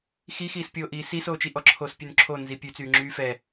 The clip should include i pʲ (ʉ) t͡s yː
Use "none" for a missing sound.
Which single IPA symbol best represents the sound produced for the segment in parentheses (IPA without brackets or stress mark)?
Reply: ʉ